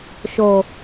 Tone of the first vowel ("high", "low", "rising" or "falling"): low